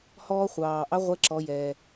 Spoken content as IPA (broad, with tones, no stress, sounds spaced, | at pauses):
h ɔː˥ χʷ ɑː˩ ʔ ɑ˧˥ ʁʷ ɛ˧˥ ǁ ɔ˩˧ j ɛː˩